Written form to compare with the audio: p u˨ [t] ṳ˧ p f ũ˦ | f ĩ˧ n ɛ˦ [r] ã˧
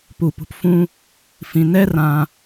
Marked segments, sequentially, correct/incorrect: incorrect: p, correct

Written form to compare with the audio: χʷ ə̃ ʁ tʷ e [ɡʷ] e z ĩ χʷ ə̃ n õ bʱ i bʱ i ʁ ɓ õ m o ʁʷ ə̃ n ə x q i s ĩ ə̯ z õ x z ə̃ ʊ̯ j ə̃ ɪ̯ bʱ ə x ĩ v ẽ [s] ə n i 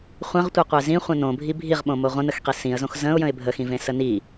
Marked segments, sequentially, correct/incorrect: incorrect: qʷ, correct

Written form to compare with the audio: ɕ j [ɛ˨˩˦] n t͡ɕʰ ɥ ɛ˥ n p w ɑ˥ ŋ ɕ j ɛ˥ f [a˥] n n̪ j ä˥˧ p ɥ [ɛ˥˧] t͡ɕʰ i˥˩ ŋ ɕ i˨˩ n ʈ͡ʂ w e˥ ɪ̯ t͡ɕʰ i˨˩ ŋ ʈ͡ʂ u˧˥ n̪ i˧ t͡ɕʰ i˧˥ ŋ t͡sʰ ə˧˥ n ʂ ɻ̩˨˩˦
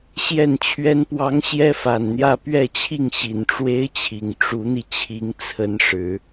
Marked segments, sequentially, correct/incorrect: incorrect: ɛ˥˩, incorrect: a˨˩, correct

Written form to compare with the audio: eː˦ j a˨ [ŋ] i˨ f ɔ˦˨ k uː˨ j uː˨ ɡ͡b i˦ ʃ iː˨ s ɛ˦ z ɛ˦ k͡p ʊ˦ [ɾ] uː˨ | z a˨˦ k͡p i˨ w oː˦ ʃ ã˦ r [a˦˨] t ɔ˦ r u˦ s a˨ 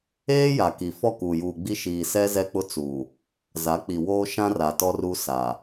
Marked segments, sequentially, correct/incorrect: incorrect: k, incorrect: t͡s, incorrect: a˨

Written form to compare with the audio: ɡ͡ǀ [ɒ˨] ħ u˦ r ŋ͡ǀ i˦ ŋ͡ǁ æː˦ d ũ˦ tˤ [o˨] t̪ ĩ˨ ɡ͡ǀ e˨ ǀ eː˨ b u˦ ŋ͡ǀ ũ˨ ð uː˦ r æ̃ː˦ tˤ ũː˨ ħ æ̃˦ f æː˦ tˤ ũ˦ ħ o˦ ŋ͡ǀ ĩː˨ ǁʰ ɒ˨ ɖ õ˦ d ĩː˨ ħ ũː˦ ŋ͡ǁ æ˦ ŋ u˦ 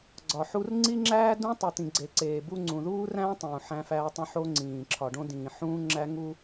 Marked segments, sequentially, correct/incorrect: correct, incorrect: u˨

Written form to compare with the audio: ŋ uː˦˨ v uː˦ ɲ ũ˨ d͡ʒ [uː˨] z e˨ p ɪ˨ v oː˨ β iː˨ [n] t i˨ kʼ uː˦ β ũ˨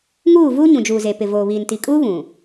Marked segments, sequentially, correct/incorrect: correct, correct

